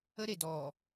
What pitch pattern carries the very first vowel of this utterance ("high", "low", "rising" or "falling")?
high